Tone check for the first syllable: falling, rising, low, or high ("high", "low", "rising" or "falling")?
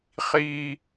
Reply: high